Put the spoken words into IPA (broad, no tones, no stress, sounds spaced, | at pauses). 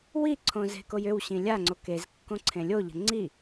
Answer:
w i ǀʰ õ z e̤ k o j ʏ w ɕ ĩ lʲ a ŋ͡ǀ o k e z kː õ ǀʰ ẽ lʲ o ʎ ə̤ ŋ͡ǀ i